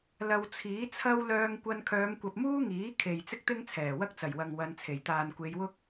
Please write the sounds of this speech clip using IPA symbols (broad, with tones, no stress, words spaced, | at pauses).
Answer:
lɐ˧wt͡sʰiː˨˥t͡sʰɐ˥w lœː˧ŋkʷɐ˧n kʰœː˨˧mkʷɐ˨p̚muː˥ ŋiː˨˥kʰe˨j t͡sɪ˥k̚t̪ɪ˥ŋt͡sʰɛː˨˩ wɐ˥k̚t͡sɐ˨˩jwɐ˨ŋ wɐ˨˧nt͡sʰe˨˩j t̪aː˨nkʷe˨˧jwʊ˥k̚